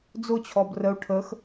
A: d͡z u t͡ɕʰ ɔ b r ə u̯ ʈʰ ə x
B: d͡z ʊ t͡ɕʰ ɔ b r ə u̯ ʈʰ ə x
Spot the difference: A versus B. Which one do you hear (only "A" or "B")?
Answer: B